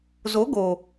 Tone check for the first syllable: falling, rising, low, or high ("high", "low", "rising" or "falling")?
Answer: rising